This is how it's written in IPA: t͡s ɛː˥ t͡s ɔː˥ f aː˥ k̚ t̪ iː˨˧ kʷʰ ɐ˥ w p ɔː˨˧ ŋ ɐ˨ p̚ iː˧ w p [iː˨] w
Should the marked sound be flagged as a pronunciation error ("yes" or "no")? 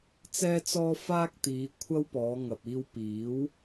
yes